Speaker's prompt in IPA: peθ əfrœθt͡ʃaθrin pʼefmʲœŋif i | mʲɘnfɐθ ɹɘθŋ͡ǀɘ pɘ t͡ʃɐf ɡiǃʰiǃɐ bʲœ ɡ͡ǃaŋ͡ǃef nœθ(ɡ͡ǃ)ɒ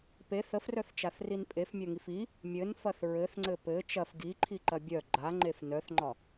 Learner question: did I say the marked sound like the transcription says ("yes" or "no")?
no